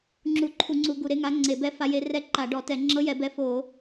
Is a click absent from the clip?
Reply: no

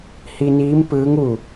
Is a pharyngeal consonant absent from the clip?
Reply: yes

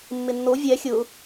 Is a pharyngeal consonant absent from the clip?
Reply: yes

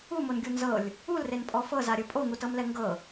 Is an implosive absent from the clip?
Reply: yes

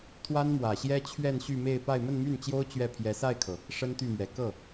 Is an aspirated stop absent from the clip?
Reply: no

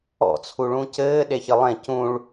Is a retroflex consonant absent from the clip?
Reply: no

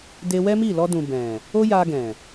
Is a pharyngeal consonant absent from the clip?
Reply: yes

